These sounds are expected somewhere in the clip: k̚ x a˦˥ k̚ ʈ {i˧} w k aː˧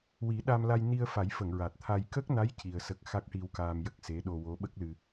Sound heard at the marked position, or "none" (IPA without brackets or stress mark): i˧